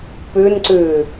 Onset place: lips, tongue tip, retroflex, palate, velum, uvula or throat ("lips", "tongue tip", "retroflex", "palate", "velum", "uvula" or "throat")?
lips